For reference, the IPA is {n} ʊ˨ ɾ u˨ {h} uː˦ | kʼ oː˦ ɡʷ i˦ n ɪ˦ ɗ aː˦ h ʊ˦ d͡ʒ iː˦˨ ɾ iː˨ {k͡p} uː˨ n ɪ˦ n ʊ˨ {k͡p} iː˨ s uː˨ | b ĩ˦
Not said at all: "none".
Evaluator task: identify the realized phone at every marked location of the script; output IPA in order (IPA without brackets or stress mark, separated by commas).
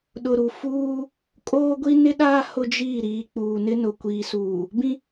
ɗ, f, k͡p, kʷ